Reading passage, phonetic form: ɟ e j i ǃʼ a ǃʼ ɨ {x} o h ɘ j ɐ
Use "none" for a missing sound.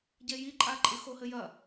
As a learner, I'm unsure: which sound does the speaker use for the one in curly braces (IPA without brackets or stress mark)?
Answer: x